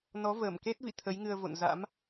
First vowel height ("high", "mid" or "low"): mid